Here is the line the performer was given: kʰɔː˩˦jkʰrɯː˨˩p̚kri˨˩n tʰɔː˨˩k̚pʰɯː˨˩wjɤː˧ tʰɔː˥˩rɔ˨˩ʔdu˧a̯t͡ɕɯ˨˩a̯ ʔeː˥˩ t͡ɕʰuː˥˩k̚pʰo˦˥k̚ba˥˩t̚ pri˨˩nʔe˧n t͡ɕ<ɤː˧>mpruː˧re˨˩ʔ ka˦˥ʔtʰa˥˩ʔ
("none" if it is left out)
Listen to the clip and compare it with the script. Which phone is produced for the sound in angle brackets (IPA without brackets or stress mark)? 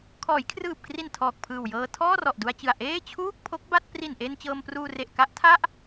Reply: ɤː˧